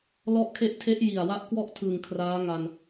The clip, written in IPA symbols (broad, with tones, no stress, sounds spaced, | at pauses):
l ɔ˦˥ ʔ kʰ e˦˥ ʔ tʰ e˦˥ ʔ j i˨˩ a̯ w a˦˥ ʔ k w ɔ˥˩ ʔ tʰ ɯ˨˩ ŋ kʰ r aː˦˥ ŋ a˧ n